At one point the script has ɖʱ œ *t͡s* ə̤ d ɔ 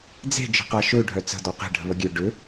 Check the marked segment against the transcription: correct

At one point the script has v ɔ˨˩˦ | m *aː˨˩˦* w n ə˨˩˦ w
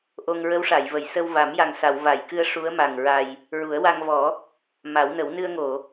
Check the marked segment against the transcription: incorrect: a˨˩˦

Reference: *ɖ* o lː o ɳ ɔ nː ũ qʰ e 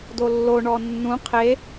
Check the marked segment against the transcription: incorrect: d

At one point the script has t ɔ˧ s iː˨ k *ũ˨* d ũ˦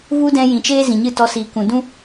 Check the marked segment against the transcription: correct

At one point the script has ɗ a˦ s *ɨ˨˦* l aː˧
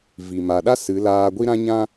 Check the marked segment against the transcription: correct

